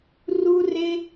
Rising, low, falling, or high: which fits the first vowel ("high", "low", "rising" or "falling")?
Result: high